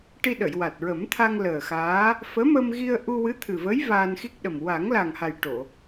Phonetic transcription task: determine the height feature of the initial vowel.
high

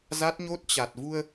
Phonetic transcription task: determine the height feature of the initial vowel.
low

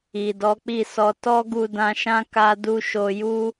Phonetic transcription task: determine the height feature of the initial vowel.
high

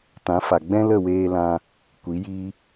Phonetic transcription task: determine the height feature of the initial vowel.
low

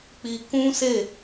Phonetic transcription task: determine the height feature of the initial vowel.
high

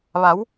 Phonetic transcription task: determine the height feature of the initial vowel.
low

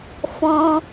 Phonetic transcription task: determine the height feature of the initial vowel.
mid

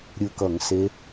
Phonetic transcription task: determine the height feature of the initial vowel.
high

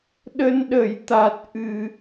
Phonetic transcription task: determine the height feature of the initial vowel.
mid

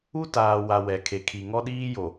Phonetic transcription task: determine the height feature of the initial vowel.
high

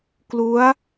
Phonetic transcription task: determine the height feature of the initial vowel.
high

